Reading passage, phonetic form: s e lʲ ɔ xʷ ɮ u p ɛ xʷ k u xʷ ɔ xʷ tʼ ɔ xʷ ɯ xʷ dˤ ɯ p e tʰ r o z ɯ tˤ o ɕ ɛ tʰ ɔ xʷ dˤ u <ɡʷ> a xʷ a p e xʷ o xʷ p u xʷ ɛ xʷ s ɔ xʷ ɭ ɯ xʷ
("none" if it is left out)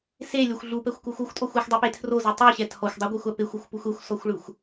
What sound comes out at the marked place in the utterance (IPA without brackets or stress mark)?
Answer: ɡʷ